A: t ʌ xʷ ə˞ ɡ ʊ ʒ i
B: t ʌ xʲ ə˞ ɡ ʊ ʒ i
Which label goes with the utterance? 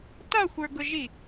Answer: A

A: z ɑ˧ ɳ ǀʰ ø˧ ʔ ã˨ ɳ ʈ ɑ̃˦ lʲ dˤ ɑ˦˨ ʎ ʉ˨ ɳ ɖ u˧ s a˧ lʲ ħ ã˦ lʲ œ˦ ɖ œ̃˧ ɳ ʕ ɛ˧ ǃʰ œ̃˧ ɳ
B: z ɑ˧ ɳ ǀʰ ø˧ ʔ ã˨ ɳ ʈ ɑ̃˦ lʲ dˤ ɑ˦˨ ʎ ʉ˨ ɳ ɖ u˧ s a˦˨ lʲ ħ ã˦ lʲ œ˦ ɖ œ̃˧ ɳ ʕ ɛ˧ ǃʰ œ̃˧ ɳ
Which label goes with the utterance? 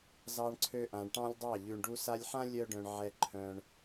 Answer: A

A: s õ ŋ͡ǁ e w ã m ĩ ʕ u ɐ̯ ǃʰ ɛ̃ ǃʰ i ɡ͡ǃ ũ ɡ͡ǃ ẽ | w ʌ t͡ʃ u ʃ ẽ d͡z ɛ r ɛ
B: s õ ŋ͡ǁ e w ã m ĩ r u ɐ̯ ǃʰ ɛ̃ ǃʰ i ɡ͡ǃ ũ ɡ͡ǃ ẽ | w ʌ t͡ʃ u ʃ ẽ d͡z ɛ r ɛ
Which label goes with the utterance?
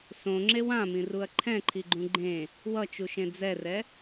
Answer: B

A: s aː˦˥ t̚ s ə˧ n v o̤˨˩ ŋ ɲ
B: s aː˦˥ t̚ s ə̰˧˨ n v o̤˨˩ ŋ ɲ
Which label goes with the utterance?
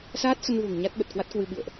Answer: A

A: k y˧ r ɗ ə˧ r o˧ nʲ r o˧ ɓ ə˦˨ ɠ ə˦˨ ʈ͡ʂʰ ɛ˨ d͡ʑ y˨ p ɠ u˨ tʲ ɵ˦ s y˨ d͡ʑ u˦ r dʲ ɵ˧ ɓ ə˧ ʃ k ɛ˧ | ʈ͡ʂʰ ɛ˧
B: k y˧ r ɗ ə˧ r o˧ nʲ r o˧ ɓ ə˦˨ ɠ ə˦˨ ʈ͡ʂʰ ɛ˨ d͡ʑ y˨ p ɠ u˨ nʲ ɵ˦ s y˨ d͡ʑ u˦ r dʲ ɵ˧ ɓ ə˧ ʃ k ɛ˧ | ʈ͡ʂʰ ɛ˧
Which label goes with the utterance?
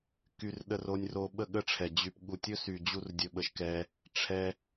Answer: A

